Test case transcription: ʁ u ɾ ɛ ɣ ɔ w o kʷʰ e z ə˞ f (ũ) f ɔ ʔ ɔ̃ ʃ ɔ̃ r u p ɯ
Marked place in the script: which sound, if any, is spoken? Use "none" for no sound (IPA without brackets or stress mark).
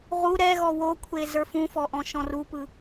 ũ